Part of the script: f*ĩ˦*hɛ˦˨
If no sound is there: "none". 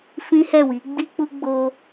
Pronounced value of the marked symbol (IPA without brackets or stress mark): ĩ˦